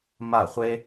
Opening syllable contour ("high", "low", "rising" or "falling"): falling